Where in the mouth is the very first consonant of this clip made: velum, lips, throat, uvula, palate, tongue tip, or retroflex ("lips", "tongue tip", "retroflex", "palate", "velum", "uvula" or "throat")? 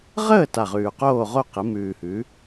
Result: uvula